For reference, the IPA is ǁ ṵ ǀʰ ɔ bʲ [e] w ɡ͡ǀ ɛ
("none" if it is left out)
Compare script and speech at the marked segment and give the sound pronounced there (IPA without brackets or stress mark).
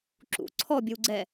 ɨ